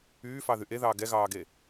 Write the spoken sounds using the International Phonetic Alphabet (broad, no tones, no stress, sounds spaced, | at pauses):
yː f ɑ ð y ʔ e ð ɑː ɡ ɛ ɣ ɑː ɡ e